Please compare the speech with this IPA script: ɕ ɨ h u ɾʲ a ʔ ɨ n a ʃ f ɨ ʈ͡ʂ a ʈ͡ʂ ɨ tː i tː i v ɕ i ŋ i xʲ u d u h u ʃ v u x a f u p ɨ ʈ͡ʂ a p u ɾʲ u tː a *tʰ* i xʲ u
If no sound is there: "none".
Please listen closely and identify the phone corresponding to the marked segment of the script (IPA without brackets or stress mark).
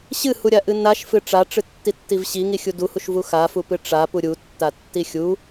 tː